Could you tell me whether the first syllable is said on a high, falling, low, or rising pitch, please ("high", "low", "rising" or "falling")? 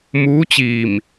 rising